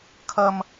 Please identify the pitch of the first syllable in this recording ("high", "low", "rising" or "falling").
high